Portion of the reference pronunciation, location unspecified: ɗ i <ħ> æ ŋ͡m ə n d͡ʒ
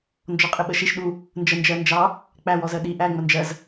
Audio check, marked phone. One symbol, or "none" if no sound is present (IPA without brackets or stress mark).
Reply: ʔ